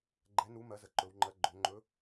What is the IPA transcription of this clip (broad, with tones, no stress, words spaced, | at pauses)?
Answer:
ɡ͡ǃɛ˨˥nu˨˥ mɜ˨˥zə˩˧ǃɵ˩˧wŋ͡ǃɜ˨˥ ɡ͡ǃɵ˩˧ŋ͡ǃɵ˨˥